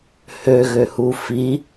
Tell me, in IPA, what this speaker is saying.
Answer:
h ø ɣ ø h u f i

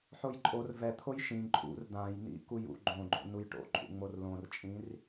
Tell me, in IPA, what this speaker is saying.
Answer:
ħ o j ǃʼ o r v ɛ t̪ʰ o j ʃ ĩ ǃʼ ṵ r d̪ ã j n ḭ k u j ṵ ɡ͡ǃ õ ɡ͡ǃ o̰ n u j ʈ o̰ ǃʼ ṵ ŋ͡m o r l õ r t͡ʃʼ ĩ r

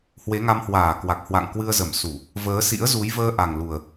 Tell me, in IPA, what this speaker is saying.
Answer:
h w e˨˦ ŋ a˧ m h w aː˧˩ k w a˨˩ k̚ h w a̰˧˨ ŋ k w ɨ˧ ə̯ z ə˧˩ m s u˧˩˨ | v əː˨˦ s ḭ˧˥ ə̯ z u˨˦ j v əː˧ ʔ a˨˩ ŋ l u˨˩ ə̯

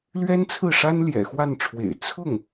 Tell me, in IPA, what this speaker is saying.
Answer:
l ɥ ɛ˥ n t͡sʰ ɹ̩˥˩ ʂ a˥ n l j ɛ̰˨˩ x w a˥˩ n ʈ͡ʂʰ w ḛ˨˩ ɪ̯ t͡sʰ ʊ˥˩ ŋ

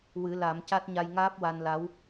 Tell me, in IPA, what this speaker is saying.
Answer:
w ɨ˨˩˦ l a˨˩˦ m c a˦˥ t̚ ɲ a˧ j ŋ aː˦˥ p̚ w a˧ n l a˧˥ w

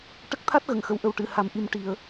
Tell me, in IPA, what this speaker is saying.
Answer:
ʈ ə˦˥ k̚ t̪ʰ a˦˥ t̚ ɣ ə˨˩˨ ŋ x ə˨˩˨ w ʔ ə˨˩ w ʈ ɨ˨˩˨ h a˨˩ m ʔ i˨˩ m ʈ i˨˩˨ ə̯

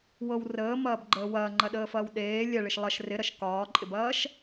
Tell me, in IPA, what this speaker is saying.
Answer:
w ɤ w r əː m ɐː b ɡ͡ǃ əː w ɐː ŋ͡ǃ ɐ ɗ əː f ɐː w ɗ eː lʲ ɛ ɭ ɪ ʃ lˠ ɐ ʃ r ɪ ɾ ɐ ʃ k ɒː ǃʼ ɪ b ɐː ʃ

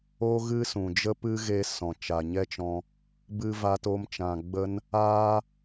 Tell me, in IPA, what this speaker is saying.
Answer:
o˦ ɣ ɨ˦ s ũ˨ d͡ʒ ə˦ p ɨ˦ ɣ e˧ s ɔ̃˨ t͡ʃ aː˨ ɲ ɛ˦ t͡ʃ ɔ̃˧ | b ɨ˧ v aː˧ t o˧ m t͡ʃ ã˨ ɡ͡b ə˦ n | aː˦

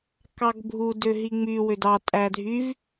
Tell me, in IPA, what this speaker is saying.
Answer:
k ɑ ɡ bʱ u d ø ɦ i ŋ͡m y w ø d ɑ tʼ æ dʱ y v

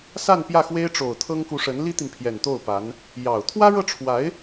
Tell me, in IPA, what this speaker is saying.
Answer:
s a˥˧ n p j ä˥˩ x w e˥ ɪ̯ ʈ͡ʂ o˨˩ ʊ̯ t̪ʰ ɤ˥ ŋ k u˧˥ ʂ ə˧˥ n l i˥ t̪ i˨ n pʰ j ɛ˨˩ n t̪ o˥˩ ʊ̯ p a˧˥ n | j ɑ˨˩ ʊ̯ t̪ʰ w ä˥ ɻ ɤ˥˩ ʈ͡ʂʰ w a˧˥ ɪ̯

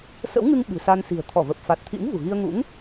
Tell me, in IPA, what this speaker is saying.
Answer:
s ə̰˧˥ w ŋ ɨ˧ ŋ ɓ ɨ̤˨˩ s a˧ n s i̤˨˩ ə̯ t̪ʰ ɔ˧˩ v ə˨˩ p̚ f a˨˩ t̚ t̪ʰ ḭ˧˥ ŋ v ṳ˨˩ ɣ i˧ ə̯ ŋ ṵ˧˥ ŋ

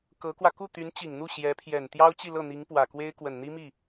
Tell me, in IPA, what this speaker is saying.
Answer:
k ɤ˧˥ k w ä˧ k u˥˩ t̪ y˧˥ n t͡ɕ i˨˩ ŋ n̪ u˥˩ ɕ j ɛ˧˥ pʰ j ɛ˨˩ n t̪ j ɑ˥ ʊ̯ t͡ɕ i˥˧ l ɤ˥˩ n̪ i˧˥ ŋ p w ä˨˩ k w e˥ ɪ̯ k w ə˨˩ n n̪ i˥ m i˥˩

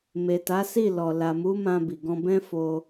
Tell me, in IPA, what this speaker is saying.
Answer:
m e˨ t a˨˦ s i˦˨ l ɔ˨ l a˨ m u˨˦ m ã˧ b i˨ ɡ ɔ̃˧ b ɛ̃˦ f o˧

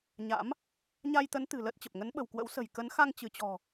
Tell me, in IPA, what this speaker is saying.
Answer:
ɲ a̰˧˥ m | ɲ a˧ j t̪ ə˨˦ n t̪ ɨ̤˨˩ l əː˦˥ t̚ t͡ɕ ə˨˩ p̚ ŋ ə˨˦ n ɓ ə̤˨˩ w k w ə̰˧˥ w s ə̤˨˩ j k ə˨˦ n x a˧ ŋ t͡ɕ ɨ˧˩ t͡ɕ ɔ̤˨˩

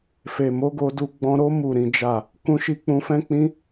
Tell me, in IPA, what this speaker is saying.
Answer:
f e˨ m o˨˦ ɡ o˧ d u˧ ɡ͡b ɔ̃˧ ɾ o˦ m u˦˨ ɾ ĩ˨˦ d͡ʒ a˦˨ | k ũ˦ ʃ i˦ k͡p ũ˧ f ɛ̃˦ k͡p ĩ˦

